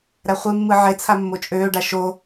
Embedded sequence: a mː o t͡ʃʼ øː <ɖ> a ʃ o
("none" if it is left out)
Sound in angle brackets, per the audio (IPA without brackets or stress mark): ɖ